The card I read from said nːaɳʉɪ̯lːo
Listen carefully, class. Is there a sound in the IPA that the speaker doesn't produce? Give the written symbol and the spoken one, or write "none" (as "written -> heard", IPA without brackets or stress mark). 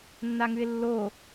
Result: ɳ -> ŋ